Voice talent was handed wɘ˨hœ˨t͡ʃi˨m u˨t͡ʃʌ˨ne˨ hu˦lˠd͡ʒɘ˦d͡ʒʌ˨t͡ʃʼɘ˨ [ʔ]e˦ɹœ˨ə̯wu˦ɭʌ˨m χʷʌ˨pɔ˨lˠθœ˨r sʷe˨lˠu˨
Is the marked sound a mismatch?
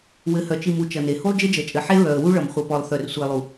yes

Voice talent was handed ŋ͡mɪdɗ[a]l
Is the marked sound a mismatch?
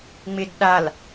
no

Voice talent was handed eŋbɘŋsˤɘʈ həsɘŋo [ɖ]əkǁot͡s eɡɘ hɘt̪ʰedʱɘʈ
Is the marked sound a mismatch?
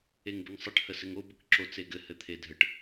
yes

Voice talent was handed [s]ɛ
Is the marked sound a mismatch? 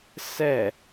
no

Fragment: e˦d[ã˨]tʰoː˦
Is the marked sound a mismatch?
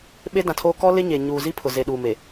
no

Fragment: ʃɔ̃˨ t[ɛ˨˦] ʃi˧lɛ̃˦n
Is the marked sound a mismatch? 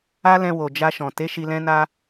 yes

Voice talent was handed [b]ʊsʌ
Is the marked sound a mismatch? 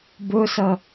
no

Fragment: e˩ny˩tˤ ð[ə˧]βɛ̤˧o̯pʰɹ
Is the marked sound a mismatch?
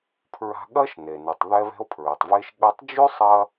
yes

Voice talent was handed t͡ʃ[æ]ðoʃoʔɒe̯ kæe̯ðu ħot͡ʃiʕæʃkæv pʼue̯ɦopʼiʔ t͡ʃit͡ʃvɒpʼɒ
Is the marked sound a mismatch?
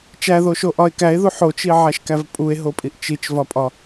no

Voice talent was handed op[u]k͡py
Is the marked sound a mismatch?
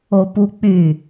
no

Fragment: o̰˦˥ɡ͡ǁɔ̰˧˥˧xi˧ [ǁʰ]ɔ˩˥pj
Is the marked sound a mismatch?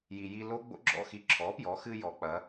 no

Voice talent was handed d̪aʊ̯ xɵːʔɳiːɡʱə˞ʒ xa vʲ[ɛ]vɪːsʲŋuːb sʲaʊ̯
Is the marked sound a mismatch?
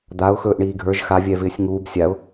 no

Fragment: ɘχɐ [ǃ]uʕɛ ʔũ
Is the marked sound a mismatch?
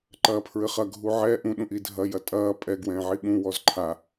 yes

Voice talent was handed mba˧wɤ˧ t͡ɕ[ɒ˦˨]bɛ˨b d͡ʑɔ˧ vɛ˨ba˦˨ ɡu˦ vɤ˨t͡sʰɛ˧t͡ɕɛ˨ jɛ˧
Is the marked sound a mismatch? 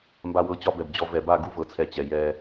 yes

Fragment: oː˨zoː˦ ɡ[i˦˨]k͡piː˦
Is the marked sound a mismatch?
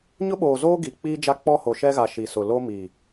yes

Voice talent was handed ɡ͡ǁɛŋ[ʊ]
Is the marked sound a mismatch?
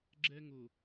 no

